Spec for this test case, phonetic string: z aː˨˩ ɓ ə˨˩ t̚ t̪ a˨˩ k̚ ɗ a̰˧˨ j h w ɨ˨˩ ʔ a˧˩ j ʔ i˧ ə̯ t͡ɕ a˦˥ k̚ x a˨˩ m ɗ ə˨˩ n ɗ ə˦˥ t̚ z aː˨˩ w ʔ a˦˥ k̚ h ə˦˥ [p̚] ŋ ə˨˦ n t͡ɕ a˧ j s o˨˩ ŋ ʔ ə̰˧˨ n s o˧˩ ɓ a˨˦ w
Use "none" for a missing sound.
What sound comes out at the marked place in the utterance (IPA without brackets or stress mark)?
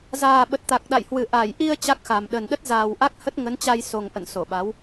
t̚